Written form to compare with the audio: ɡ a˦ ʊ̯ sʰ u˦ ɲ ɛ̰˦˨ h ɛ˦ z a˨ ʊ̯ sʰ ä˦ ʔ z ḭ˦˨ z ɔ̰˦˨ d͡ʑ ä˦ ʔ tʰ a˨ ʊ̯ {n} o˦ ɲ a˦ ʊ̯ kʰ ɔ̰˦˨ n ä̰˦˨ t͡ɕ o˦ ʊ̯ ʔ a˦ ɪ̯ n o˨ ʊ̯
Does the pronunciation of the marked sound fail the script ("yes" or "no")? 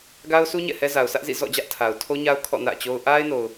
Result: yes